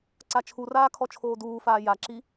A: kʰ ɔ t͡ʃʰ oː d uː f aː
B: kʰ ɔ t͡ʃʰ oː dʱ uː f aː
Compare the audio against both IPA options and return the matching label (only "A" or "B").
A